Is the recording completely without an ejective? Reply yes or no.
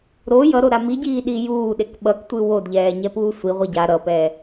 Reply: yes